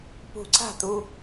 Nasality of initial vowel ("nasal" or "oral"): oral